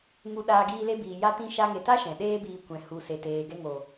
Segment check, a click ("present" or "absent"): absent